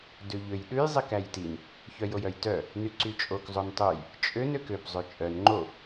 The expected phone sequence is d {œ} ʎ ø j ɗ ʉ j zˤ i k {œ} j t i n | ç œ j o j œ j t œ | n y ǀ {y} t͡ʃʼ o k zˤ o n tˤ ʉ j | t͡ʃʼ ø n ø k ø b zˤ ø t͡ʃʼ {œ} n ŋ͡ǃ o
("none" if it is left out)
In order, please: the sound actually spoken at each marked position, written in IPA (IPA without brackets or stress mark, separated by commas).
ø, æ, y, œ